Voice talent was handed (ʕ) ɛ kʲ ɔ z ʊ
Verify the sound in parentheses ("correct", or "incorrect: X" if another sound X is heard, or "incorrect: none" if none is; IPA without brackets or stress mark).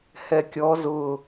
incorrect: h